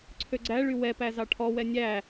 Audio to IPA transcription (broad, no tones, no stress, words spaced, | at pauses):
ǀʰøɡ͡ǀæɭy wɛpæ zɑʈʰɔwɛ nʲæ